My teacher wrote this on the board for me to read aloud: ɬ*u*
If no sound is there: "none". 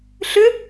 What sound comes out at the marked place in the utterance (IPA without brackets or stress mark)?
ʏ